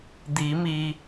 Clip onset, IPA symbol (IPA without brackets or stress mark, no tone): d̪